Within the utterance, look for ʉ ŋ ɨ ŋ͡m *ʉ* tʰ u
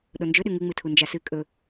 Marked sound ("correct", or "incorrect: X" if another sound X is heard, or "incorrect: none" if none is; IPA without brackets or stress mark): incorrect: ɨ